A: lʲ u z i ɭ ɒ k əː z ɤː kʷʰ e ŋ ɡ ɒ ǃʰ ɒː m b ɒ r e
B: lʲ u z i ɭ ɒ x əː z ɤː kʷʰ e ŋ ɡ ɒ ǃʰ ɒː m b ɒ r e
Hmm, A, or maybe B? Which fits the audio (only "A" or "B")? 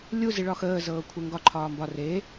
B